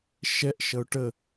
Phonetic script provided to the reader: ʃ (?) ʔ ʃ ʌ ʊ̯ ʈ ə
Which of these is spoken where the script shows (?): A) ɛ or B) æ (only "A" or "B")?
A